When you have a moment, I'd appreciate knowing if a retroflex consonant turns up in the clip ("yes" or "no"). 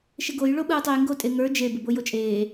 yes